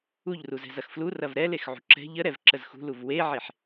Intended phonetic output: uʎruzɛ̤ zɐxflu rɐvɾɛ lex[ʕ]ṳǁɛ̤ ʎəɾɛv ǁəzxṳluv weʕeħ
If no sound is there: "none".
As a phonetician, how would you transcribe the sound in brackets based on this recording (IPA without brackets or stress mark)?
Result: ʕ